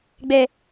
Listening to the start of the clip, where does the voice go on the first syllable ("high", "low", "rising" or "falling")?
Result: high